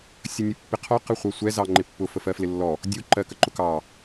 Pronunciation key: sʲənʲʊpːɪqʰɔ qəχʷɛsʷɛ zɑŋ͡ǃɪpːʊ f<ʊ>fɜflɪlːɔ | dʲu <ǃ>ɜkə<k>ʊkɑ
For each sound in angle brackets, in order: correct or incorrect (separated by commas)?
incorrect, correct, incorrect